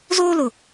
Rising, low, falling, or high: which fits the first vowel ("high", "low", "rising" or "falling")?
high